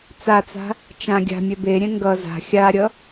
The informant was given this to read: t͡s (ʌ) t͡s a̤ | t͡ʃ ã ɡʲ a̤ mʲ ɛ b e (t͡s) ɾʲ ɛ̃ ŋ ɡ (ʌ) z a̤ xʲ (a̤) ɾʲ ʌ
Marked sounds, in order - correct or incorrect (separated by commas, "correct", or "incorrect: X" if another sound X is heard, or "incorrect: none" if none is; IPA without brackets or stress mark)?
incorrect: a, incorrect: none, correct, incorrect: a